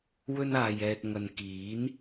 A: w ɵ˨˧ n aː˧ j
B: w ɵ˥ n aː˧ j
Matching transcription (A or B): B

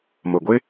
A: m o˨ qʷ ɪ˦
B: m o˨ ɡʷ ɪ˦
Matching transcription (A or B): B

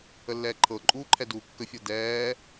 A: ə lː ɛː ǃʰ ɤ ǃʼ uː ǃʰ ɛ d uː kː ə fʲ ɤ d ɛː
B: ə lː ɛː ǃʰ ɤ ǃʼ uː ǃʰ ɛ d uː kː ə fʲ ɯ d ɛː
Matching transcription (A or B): A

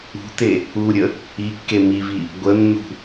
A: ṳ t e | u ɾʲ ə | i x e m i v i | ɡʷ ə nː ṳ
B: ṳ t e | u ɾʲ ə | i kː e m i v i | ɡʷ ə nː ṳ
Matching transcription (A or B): B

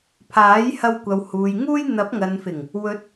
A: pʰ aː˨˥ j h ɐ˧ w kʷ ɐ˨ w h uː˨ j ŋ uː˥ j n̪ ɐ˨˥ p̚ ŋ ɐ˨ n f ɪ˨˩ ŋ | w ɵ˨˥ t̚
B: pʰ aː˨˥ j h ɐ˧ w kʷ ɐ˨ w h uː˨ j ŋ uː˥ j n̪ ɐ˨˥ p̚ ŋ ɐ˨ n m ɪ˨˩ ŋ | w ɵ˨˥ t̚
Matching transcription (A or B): A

